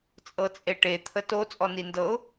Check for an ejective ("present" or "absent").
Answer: present